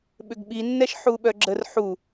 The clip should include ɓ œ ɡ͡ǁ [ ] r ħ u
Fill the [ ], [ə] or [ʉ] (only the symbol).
ə